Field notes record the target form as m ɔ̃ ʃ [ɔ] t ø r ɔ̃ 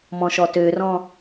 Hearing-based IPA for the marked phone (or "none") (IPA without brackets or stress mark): ɔ